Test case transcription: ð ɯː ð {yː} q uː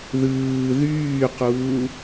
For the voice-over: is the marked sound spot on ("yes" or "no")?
yes